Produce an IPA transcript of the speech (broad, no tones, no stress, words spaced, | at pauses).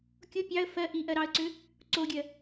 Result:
kʲo pʲɑə̯ fɜ ʔiʔɜɾɑə̯ǀʏ | ǀoɡʲɜ